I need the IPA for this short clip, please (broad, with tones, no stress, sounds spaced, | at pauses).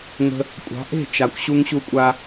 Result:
ŋ ə̤˧ | kʷʼ ɑ̤˩˥ ʔ e̤˥˩ t͡ʃ a˩ kʷ ɕ u˧ ŋ ɕ u˧ kʷʼ a˧